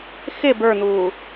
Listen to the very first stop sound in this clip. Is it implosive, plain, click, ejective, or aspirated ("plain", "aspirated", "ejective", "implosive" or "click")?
plain